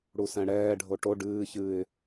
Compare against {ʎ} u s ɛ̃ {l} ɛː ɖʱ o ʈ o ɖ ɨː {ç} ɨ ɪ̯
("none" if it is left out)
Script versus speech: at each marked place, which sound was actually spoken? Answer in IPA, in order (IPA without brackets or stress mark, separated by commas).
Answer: ɽ, ɽ, ç